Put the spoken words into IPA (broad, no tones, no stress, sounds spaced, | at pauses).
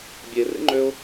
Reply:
bʲ e r ḛ ŋ͡ǃ ø ʊ̯